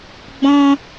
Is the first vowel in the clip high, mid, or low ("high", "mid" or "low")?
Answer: mid